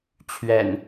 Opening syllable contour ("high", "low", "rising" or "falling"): low